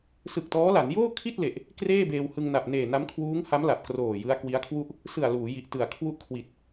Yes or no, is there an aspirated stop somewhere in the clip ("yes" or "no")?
yes